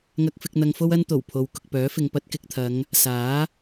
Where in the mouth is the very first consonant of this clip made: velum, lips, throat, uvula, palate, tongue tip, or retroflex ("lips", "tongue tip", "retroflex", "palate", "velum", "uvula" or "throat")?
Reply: velum